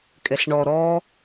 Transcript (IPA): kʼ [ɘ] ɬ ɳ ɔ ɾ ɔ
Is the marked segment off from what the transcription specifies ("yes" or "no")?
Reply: yes